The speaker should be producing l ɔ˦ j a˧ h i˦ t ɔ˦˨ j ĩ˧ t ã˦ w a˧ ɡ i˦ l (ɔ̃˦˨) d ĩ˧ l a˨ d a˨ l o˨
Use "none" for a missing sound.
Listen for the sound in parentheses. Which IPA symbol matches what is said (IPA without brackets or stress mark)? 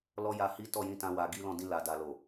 ɔ̃˦˨